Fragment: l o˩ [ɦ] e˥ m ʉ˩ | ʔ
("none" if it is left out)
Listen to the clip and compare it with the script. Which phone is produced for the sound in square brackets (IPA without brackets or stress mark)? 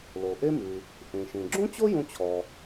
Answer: ʔ